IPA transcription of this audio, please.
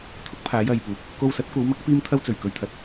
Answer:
t̪ʰʊ˥k̚pʰaː˨˧j ɐ˨jpuː˨k̚ | ko˧wsɐ˨˥t̚kʷɐ˨˧wmɐ˨˥k̚ piː˥mt̪ʰɐ˥w t͡sɵ˨˩ɥ kɵ˨ɥt̪ʰɐ˨t̚

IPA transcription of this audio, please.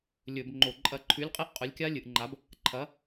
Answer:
lʲɵ˧˩˧bŋ͡ǃo˧˩˧ǃʼɐ˦˨ ǃʰʉ˨˥lʲqʼe˦˥ʔ qʼɵ˨˥lʲkʲa˦˥lʲɨ˩˧ʔŋ͡ǃa˨˥b | ǃʰɐ˨˥

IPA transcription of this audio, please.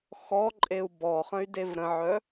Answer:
xɔǃʼeu̯ bɔχə̃y̯dev ɾə̃ʕœ

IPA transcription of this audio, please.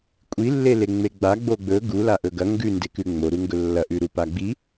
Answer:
kʷʼilːe leŋ͡meɡ͡ba ɡ͡boɡ͡bɵ ɡu laʔɵɡɐ ŋɡʉnde kʉŋ͡moɾuŋɡɵ lːɐʔʉɾu paɡ͡bi

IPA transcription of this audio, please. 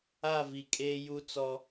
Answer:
a˦˨vi˨ kʼeː˦ju˦ t͡sɔ˦

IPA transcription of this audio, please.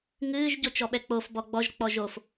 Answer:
ŋɨːʒ ɟot͡ʃɔɓɛk͡pof bɔɡ͡bɔʒ k͡pɔʒof

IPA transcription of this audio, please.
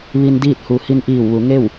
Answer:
ʋi˧ndiː˥˨t̚ hu˩ hi˧nʔiː˧˩w ʋu˩˧ŋe˥˨w

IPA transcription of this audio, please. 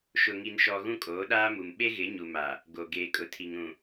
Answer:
ʃʊ˨ŋi˨nʃɔ˨ ɣũ˦kʼoː˨˦ɗaː˦mu˨m ɓe˦ɣɪ˨˦ɲu˨ma˨ | ɡo˨ ɡeː˨kʼʊ˨tʰi˨ŋ ɾũ˨

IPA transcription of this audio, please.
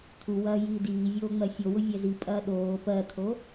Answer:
tʰuwɐː jiːdiːvʲoː ŋ͡mɜfʲowʊ vʲɛzipʼɐː ɗoː pɜtʰo

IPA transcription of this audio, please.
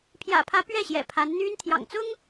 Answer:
pʰjä̰˨˩pʰä˧˥ pɥɛ˥˩ɕjɛ̰˨˩ pʰa˧˥nn̪y˥n t̪ʰjɑ̰˨˩ŋt͡sʊ˥ŋ

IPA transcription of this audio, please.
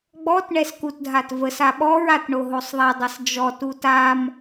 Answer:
ɡ͡bɔt ɳɛskutdʱatvəs aɓɔɹ atɳoɦosˤðˤa dˤəsd͡ʒɔ tutam

